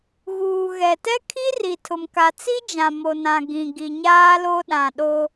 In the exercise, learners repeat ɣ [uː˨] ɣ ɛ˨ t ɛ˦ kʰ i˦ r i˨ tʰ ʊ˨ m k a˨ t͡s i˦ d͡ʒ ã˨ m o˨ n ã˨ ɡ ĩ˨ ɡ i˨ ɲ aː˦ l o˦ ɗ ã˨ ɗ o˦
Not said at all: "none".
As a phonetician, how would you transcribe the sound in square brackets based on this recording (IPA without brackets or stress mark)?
uː˨